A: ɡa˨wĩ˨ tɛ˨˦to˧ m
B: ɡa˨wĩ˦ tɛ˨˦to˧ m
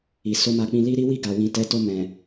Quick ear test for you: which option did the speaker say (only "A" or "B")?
A